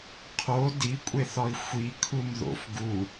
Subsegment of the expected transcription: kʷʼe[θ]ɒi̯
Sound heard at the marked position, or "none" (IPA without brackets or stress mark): θ